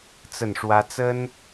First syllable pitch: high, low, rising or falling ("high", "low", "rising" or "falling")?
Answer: falling